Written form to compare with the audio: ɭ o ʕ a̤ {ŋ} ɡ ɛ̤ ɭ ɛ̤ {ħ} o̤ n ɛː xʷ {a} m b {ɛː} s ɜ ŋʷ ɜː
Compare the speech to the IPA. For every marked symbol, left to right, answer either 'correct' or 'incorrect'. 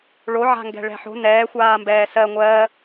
correct, correct, incorrect, correct

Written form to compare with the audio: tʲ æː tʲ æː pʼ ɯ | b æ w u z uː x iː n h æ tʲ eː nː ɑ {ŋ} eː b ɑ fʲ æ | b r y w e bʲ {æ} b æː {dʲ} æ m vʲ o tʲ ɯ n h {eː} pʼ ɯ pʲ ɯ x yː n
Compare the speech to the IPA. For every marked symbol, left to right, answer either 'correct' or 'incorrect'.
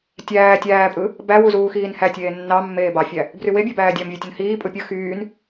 incorrect, correct, correct, incorrect

